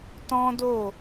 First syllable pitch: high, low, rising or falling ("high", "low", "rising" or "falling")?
high